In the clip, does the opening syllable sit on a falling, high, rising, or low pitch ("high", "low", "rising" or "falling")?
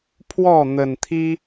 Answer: falling